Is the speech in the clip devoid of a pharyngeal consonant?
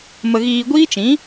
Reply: yes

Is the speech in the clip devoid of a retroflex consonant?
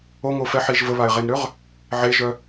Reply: yes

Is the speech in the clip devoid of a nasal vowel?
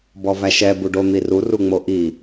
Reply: yes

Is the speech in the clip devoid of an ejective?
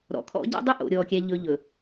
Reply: yes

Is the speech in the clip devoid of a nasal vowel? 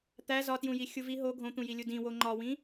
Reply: no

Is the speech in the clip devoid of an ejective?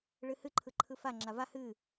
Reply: yes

